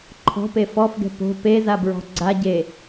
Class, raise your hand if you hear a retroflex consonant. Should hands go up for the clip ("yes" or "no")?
no